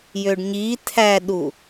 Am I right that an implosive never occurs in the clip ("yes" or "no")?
no